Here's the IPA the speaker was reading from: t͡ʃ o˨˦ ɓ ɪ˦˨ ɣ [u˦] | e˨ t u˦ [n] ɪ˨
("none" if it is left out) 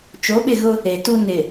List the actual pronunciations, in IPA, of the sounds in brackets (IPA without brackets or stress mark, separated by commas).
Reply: ʊ˦, n